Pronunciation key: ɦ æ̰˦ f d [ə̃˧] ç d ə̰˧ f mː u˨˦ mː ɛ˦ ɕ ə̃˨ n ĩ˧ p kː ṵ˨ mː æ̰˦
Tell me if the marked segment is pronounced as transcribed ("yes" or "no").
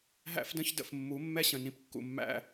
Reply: no